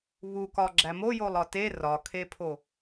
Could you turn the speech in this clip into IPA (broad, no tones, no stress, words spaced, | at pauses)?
βukɒ ɡ͡ǁæmo jolˠɒte rɒkʰepʰo